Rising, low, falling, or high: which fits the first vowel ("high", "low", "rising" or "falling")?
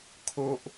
high